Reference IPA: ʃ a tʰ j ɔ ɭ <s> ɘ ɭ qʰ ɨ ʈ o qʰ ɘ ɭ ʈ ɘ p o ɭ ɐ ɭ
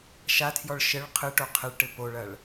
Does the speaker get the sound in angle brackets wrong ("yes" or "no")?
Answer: yes